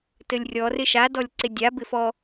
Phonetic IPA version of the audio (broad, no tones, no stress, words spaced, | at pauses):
tɘlʲrʲɔ rɪʃa dɔlʲǀɪdʲa bɪfɔ